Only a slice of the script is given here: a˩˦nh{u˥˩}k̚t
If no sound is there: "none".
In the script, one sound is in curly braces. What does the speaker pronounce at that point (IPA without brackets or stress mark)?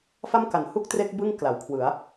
u˥˩